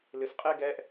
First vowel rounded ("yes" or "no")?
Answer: no